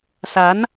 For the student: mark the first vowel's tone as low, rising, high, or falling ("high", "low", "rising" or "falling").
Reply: rising